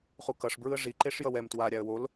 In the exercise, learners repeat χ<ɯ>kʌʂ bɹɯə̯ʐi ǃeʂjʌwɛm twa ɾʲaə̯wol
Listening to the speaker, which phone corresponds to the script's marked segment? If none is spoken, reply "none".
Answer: u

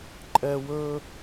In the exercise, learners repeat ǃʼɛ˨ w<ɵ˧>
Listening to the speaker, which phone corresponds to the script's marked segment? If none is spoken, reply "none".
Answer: ɵ˧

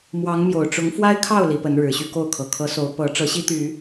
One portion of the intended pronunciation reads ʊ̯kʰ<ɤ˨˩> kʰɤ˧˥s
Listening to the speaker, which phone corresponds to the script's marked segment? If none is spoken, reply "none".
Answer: ɤ˨˩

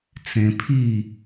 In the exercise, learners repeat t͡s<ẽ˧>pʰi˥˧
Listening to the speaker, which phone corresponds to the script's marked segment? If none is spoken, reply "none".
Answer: ẽ˧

